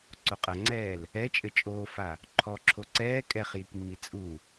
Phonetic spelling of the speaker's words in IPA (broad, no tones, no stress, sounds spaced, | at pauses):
ǀ o qʼ ɐ ŋ͡ǀ ɛː l | ɛ t͡ʃʼ ɘ t͡ʃʼ oː f a | ǃʰ ɔ ǁʰ o ǀ ɛː kʼ ɛ χ j i k mː i t͡sʼ u